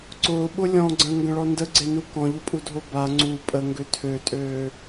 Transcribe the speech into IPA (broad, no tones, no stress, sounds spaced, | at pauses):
ǀ ʊː ɓ ʊ lʲ ɔ̃ ɡ͡ǀ ə̃ː ŋ ɡ ə̃ ɭ ɔ n d ə ɡ͡ǀ e n u k ɔ̃ ʎ ʊ pʼ u dʱ o b a ŋ͡ǀ u pʼ ə ŋ ɡ ø tʰ ø tʼ øː